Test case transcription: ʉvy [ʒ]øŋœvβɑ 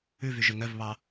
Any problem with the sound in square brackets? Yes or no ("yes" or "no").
no